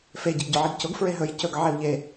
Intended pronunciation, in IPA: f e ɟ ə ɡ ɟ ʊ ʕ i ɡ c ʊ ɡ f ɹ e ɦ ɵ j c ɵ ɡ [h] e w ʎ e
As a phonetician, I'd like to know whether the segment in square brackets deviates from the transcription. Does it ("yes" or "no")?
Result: yes